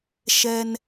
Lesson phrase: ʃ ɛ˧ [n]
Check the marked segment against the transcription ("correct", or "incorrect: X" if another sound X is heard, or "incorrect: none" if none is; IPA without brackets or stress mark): correct